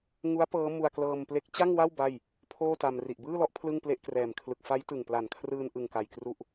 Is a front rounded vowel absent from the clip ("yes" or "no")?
yes